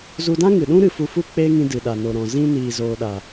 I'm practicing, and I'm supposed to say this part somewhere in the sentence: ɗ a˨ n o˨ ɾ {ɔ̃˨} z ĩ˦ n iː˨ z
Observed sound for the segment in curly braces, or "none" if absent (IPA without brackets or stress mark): ɔ̃˨